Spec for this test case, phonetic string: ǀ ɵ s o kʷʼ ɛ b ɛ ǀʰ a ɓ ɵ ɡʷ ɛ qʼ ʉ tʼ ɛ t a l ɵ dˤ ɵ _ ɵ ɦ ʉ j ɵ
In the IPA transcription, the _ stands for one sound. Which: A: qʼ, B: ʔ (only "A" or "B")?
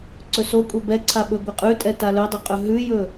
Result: A